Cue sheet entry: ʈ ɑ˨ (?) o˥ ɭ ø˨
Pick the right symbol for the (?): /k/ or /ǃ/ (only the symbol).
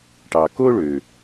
k